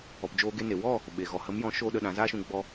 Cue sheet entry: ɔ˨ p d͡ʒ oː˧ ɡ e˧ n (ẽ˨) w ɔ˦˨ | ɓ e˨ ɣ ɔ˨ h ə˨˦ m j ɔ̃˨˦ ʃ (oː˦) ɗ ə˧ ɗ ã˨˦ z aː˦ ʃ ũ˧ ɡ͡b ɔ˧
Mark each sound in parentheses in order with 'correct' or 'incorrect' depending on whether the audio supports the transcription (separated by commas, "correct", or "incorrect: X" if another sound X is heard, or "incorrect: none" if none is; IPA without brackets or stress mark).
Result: incorrect: e˨, correct